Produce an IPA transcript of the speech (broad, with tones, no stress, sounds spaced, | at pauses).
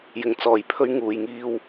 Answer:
j ɪ˨ ŋ t͡s ɔː˨ j pʰ ɵ˧ ɥ ŋ uː˨ j ŋ iː˧ w